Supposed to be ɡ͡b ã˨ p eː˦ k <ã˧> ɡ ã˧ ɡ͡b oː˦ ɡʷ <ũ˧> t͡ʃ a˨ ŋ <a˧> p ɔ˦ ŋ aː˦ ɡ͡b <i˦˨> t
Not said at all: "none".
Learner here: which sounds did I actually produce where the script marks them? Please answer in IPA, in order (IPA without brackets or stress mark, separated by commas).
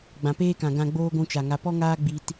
ã˨, ũ˧, a˧, i˦